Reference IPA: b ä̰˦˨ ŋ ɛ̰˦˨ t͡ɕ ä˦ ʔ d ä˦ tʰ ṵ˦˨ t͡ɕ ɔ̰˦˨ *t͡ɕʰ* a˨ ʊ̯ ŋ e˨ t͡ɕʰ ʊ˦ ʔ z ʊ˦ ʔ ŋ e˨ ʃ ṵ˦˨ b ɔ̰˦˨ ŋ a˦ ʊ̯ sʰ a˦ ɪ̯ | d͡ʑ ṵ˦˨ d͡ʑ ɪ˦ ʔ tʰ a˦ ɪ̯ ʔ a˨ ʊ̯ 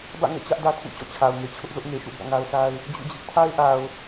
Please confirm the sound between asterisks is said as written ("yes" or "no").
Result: yes